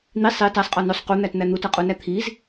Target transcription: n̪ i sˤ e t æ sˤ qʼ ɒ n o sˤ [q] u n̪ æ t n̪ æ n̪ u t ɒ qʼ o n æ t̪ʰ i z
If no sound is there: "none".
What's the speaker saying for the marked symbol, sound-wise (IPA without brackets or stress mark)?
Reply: q